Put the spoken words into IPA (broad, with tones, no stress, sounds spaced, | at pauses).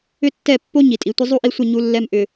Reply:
ʏ˦ tː ɛ˦˨ pː o˦ ɲ i˨ tʼ i˨ tʷ ə˦ zˤ u˦ ʔ i˧ sʷ ə˦˨ ɲ u˧ lː ɛ˧ m ʔ ʏ˨